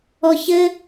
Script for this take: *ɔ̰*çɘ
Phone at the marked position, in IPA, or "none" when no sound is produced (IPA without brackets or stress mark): ɔ